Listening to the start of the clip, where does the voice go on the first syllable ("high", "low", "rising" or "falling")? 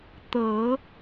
rising